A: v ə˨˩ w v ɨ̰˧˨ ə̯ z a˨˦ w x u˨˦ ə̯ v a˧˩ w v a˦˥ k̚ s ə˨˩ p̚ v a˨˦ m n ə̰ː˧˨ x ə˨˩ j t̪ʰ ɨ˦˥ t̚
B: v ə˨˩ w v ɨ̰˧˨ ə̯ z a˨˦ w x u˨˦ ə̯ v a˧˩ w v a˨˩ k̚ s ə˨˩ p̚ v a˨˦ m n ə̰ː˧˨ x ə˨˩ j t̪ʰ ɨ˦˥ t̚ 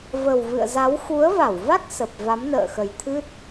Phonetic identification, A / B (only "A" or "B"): A